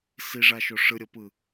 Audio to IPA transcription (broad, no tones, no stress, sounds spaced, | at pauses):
s i ʐ a ʃ o ʂ ɯ ɾʲ ɤ p ɯ